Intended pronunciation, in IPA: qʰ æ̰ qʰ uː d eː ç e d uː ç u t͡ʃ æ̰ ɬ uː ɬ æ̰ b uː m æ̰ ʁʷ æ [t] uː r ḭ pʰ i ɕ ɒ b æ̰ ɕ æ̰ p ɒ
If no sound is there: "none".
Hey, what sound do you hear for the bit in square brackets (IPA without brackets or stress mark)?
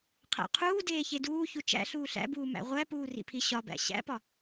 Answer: p